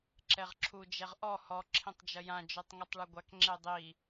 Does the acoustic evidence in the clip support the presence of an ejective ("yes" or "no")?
no